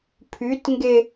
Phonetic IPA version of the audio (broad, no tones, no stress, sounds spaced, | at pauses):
pʰ y t ŋ ɡ e